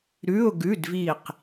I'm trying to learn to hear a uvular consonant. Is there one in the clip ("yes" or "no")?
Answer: yes